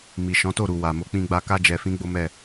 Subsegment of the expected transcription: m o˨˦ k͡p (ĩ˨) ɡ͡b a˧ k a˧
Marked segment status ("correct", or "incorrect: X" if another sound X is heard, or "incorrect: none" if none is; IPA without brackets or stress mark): incorrect: ĩ˧